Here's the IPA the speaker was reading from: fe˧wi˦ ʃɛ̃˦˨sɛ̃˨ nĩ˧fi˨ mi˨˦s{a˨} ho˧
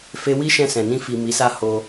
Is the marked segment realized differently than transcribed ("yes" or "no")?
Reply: yes